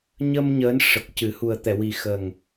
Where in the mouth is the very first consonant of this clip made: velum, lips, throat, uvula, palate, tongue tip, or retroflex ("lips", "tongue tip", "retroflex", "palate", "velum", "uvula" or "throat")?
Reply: palate